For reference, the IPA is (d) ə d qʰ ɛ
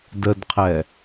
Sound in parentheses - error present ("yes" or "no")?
no